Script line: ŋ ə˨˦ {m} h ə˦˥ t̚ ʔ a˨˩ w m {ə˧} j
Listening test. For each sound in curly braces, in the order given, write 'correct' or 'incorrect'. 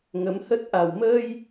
correct, incorrect: əː˧

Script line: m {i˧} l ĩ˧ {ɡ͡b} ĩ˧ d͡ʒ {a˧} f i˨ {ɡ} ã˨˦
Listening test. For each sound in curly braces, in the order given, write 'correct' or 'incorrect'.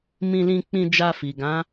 incorrect: ĩ˧, incorrect: k͡p, correct, correct

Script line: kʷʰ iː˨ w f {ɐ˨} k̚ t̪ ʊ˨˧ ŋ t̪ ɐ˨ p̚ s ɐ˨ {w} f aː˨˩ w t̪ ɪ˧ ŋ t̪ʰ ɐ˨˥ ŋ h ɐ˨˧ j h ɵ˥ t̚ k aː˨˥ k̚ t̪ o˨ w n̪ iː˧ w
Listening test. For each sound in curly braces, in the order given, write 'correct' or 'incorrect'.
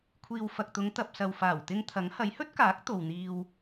correct, correct

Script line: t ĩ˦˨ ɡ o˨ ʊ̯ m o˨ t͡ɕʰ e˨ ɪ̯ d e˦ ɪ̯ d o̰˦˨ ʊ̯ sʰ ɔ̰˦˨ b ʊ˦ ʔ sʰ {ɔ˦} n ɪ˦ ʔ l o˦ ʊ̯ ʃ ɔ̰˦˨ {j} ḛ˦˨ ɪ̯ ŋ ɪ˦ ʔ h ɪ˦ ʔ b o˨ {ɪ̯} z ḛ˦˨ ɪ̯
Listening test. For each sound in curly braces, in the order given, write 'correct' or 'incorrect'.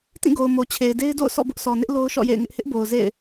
incorrect: ɔ˨, correct, incorrect: ʊ̯

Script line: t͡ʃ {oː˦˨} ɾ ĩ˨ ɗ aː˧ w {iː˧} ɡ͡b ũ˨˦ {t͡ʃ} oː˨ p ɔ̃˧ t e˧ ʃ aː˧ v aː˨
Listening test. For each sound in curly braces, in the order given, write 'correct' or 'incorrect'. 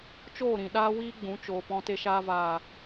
correct, correct, correct

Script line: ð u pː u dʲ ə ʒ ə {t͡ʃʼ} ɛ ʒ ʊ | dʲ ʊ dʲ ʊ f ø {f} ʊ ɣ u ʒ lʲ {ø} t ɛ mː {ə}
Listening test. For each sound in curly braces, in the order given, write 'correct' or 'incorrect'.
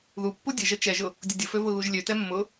incorrect: t͡ʃ, incorrect: v, correct, incorrect: ʊ

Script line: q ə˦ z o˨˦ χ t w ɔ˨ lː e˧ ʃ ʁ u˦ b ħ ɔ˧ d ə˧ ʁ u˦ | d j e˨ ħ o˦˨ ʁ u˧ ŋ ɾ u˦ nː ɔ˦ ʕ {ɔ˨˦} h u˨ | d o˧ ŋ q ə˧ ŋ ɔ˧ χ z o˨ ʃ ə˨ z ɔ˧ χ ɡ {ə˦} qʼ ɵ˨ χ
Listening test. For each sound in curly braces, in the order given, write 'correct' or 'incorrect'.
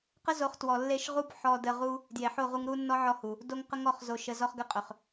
incorrect: ɔ˧, correct

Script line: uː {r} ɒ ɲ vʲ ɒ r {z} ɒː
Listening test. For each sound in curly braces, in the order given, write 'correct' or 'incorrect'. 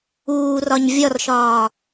correct, incorrect: ʃ

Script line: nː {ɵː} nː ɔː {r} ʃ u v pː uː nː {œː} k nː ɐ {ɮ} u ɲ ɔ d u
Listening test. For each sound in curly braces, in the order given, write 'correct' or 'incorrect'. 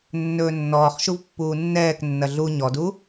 correct, incorrect: χ, incorrect: ɛː, correct

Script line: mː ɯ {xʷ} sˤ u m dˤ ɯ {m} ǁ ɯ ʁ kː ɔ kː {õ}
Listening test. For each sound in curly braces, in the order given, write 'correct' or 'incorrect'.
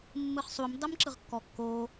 incorrect: χ, correct, incorrect: o

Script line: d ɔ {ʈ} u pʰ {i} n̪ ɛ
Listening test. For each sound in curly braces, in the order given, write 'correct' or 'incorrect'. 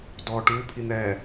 correct, correct

